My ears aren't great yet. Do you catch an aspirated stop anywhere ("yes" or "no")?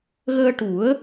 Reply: no